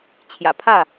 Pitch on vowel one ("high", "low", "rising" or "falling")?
low